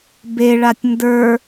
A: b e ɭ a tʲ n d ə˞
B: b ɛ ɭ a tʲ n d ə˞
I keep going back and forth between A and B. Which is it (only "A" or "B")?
A